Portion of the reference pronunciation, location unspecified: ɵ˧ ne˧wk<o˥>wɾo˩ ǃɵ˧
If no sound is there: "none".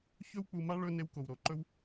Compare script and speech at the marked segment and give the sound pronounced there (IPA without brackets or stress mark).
o˩